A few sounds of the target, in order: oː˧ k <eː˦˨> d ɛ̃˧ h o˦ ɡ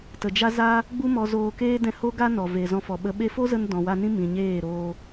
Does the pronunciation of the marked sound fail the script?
yes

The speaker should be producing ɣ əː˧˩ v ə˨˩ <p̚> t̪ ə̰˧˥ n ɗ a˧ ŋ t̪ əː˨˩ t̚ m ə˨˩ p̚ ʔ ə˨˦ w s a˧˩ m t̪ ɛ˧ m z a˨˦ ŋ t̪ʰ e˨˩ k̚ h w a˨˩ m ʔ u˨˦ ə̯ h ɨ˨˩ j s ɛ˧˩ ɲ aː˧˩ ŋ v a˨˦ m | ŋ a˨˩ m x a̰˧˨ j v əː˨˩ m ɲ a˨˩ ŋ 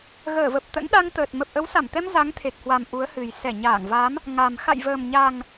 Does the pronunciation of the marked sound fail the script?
no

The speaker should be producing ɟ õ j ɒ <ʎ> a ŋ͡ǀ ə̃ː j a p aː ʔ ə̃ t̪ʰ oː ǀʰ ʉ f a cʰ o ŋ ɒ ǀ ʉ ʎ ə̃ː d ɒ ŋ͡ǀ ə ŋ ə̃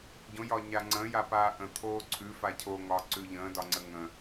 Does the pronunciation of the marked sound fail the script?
yes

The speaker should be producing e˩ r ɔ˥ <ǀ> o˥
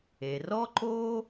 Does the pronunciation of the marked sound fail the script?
yes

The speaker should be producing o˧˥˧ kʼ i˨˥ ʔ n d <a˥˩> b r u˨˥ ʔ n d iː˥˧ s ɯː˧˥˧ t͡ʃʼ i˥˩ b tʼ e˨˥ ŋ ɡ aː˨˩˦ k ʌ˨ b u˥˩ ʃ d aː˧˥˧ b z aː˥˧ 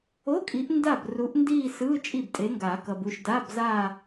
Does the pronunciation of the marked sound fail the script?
no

